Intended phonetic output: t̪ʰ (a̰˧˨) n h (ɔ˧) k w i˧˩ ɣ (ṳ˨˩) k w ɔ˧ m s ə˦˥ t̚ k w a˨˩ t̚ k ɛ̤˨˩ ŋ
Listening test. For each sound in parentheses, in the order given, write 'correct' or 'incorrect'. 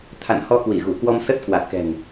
correct, correct, incorrect

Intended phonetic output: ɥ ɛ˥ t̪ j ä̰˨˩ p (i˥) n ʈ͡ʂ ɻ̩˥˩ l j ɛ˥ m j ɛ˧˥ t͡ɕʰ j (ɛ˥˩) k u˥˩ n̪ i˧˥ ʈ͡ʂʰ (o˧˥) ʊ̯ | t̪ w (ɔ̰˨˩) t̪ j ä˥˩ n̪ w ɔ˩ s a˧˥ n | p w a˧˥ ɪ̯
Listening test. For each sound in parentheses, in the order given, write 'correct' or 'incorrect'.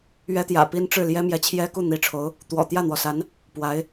correct, incorrect, correct, correct

